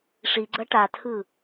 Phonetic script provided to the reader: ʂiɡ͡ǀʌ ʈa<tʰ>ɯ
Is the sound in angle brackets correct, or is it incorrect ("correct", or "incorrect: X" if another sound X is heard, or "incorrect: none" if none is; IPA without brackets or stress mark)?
correct